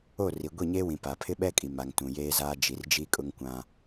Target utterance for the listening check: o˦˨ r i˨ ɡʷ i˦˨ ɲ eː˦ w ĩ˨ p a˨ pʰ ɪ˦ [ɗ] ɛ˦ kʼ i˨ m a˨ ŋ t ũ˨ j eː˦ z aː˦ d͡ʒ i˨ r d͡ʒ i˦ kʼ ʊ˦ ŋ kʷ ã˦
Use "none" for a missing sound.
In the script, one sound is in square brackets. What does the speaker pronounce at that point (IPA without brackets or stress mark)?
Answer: ɓ